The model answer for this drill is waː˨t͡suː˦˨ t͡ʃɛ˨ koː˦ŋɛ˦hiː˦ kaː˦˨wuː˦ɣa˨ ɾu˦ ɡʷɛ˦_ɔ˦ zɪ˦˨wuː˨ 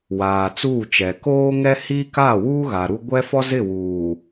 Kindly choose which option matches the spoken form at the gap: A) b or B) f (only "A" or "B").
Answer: B